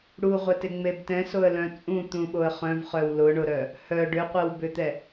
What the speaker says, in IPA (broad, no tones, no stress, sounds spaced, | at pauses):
ɽ u ʁʷ ɛ t ɪ ŋ͡m e b t ɛ̃ s o ə̯ l œ̃ t͡sʼ ũ t̪ ũ ɓ o ə̯ χ œ̃ v χ œ w l ʊ ɳ ʊ ɾ œ | h œ ɖ ʏ qʷ ɛ w b ʏ t̪ ɛ